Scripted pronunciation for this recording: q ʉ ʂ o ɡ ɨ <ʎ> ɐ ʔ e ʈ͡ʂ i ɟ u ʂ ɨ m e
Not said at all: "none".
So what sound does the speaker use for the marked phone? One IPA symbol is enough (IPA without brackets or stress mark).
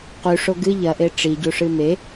ʎ